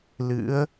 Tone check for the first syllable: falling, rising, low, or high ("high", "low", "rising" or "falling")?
rising